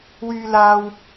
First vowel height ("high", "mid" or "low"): high